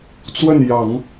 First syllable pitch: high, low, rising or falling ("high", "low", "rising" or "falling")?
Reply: falling